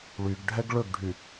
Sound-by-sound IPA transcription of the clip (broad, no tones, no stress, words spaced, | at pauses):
ɭyɡɖʱɛɡ ɭɵɡɖʱy